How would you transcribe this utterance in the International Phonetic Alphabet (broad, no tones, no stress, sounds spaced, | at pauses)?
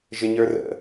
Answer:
ʒ ɪ ɲ ə˞ r ə̰